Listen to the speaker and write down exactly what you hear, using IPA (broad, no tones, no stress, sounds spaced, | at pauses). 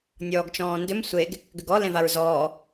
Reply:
nʲ ɔː ɡ t͡ʃ ɔ̃ː n d ʏ m sʷ e ɡ | ɡ ʏ ɡ ɔ l ẽ v a ɹ z ɔː